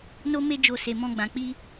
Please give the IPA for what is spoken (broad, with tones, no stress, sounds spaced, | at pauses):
n o˦ m e˦ d͡ʒ o˧ s e˨ m ɔ̃˧ ɡ͡b ã˨ k͡p i˧